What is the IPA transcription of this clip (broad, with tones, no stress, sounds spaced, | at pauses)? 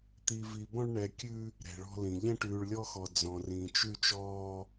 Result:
t̪ i˦ v i˦ b ɔ̃˥ ɭ ɳ ɛ˦ kʲ ʉ˥ | ɾ ɛ̤˦ ɭ ɔ̤˥ l ĩ˦ ʎ ɛ̃˥ ʈ ʉː˦ ɭ lʲ ɔ˥ x ɔ˦ d͡z ɔ̃˦ r ĩ˦ t͡ʃ ʉ˥ t͡ʃ ɔː˥